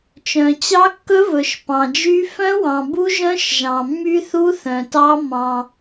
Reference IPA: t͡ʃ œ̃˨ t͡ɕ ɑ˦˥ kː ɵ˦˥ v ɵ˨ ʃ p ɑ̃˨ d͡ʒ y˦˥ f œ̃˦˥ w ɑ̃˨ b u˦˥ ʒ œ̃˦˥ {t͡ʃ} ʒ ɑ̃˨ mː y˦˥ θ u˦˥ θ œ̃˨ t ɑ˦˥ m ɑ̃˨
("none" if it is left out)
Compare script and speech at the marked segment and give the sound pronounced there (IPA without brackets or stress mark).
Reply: ʃ